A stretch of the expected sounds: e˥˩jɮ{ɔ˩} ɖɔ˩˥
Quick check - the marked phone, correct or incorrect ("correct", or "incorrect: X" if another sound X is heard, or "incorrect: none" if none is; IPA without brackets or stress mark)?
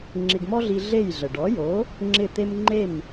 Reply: incorrect: ə˩